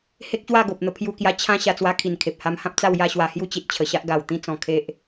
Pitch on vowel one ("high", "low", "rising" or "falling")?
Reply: high